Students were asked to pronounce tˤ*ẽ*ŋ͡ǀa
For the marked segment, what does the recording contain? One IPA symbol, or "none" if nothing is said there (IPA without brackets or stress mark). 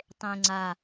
ẽ